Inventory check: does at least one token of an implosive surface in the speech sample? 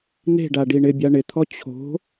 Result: no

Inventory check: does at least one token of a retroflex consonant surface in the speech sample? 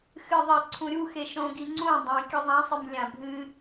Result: no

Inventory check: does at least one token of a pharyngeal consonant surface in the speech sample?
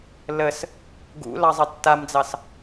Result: no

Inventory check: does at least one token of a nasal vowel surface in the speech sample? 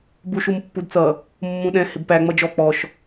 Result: yes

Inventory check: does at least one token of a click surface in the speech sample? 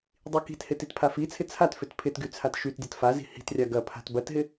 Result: no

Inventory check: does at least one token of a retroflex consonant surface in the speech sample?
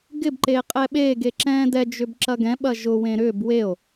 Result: no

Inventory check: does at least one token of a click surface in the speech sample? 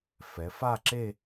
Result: yes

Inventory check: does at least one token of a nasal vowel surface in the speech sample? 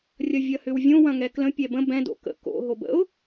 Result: yes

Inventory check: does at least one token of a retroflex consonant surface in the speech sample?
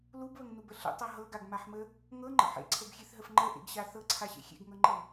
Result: no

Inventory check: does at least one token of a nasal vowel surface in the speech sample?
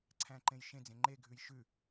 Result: yes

